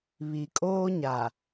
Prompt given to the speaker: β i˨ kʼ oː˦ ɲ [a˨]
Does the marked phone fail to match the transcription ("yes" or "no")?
no